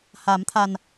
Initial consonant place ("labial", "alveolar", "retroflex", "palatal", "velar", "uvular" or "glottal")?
glottal